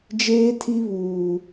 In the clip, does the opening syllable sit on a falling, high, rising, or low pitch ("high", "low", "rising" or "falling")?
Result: high